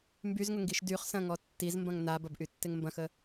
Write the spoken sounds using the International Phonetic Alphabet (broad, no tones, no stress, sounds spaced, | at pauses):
m b y z ŋ ʊ ŋ ɡ i ʃ d y χ s ɐ̃ ŋ ɔ tː i z m b ɐ̃ ŋ n a b ɐ b ʔ y tː ɪ ŋ m b ɐ̃ x ə